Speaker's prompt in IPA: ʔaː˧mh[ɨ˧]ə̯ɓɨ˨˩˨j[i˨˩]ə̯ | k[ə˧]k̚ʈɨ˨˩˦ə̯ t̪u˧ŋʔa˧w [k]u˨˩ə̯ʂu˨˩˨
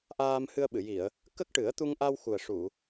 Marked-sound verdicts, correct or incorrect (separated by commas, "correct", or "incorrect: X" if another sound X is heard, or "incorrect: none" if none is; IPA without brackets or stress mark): correct, incorrect: i˨˩˨, incorrect: ə˦˥, incorrect: x